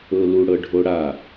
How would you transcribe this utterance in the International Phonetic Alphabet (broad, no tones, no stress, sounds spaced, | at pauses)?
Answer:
ɤ l u ɽ ɤ ɖʱ o ɽ a